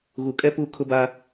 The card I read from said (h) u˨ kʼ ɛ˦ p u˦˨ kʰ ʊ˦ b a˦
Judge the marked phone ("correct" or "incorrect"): incorrect